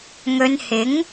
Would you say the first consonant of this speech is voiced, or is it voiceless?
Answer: voiced